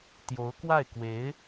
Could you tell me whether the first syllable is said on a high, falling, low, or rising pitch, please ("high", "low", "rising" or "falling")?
rising